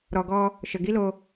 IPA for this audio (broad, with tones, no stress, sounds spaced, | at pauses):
ɾ ɔ˨ ɡ ɔ˧ | ʃ ə˨ ɡ i˦ l o˧